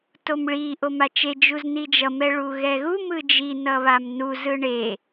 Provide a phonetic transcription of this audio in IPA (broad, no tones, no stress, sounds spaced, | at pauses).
t o m ɭ i ʔ o m a t͡ʃ e d͡ʒ u z n i d͡ʒ ʌ m ɛ ɭ u ɣ ɛ ɣ u m ɯ d͡ʒ i n ʌ β a m n u z ɯ ɳ e